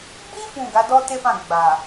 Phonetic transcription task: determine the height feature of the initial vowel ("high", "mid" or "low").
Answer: high